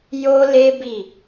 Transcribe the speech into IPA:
j o˦ l e˦ b i˦˨

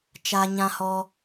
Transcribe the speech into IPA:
t͡ʃ a˧ ɲ ã˧ h ɔ˧

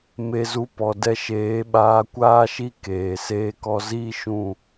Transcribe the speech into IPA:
m e˧ z u˧ p ɔ˨ d ɛ˧ ʃ eː˨˦ ɓ aː˧ kʷ aː˦ ʃ i˦ k eː˨ s eː˧ k ɔ˧ z iː˦ ʃ ũ˦˨

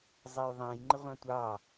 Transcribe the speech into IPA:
zˤ æ j ðˤ æ̃ j ŋ͡ǃ ɪ ʁʷ ɑ̃ tʷ ɑː

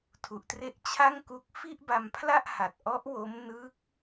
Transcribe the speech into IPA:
tʰ u˨˩ ʔ t r e˦˥ ʔ t͡ɕʰ a˥˩ ŋ k u˦˥ k̚ f i˥˩ ʔ b a˧ m pʰ l a˥˩ ʔ h a˨˩ t̚ ʔ ɔ˦˥ ʔ w o˦˥ m n ɯ˦˥ k̚

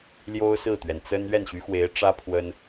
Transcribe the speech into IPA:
l j o˥ ʊ̯ s ɹ̩˥˩ t̪ ɥ ɛ˩ n t͡s ə˥ n ɥ ɛ˥˩ n ɕ y˧˥ x w e˧˥ ɪ̯ ʈ͡ʂ ä˥ pʰ w ə˥ n

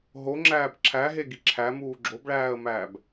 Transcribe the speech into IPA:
ɦ o ŋ͡ǁ æː b ǁʰ æ ɦ e ɡ i ǁʰ æ m uː ɡ͡ǁ o b ɭ æː ə̯ m æː b

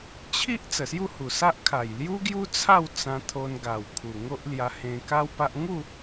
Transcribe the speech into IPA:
t͡ɕʰ i˦ ʔ t͡s ə˨˩ s j u˥˧ h u˨˩ s a˦ ʔ kʰ a˨˩ j l j u˦ ɡ j u˦ t͡sʰ a˥˧ w t͡s ã˧ t̪ʰ o˧ n ɡ a˨˩ w kʰ u˨˩ ŋ o˦ ʔ l j a˧ h ẽ˧ k a˦ w p a˦ ʔ ŋ u˥˧

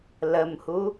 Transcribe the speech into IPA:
l ə m h u

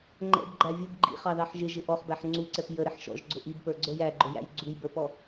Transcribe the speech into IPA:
ŋ͡ǃ ɛ̰ b ɡ͡ǃ æ vʲ ʊ b ɡ͡ǃ ḭ χ ɑ ð ɑ ħ ʒ ɪ ʒ ɪ ʔ ɔ χ b æ ħ ŋ͡ǀ u ǀ ɛ p j ə ɾ ɪ ħ ʃ ɔ̰ ʒ ɡ͡ǀ ʊ ʔ i b p ə˞ ɡ͡ǀ ə˞ j æ ɡ͡ǃ ʊ j æ̰ j ɡ͡ǀ u j b ə˞ p ɔ

